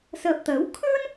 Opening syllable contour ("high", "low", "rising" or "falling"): low